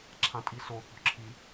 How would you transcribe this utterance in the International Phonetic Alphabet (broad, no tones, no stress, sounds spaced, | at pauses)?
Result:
ǁʰ ã tʼ i s o θ ɔ̤ ǁʰ i